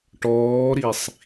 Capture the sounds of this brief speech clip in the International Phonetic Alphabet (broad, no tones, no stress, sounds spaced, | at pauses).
ʈ ɔː ɾ i sˤ